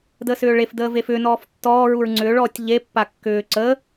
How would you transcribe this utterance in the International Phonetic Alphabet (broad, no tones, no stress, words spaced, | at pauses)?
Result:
dəːsʏːɭef dəːvefʏː nɔːftːɔː ɹuɹŋ͡ǀʏːɭ ɔːtʲʎe pːakːʏː ǀə